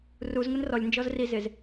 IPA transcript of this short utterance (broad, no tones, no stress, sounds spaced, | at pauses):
r u z ŋ ʊ n r ɔ lʲ n d͡ʒ ɔ z r i z ɪ z